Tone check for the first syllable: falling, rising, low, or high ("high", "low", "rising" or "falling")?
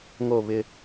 falling